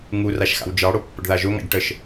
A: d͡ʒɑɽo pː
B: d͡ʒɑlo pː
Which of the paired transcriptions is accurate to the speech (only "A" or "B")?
A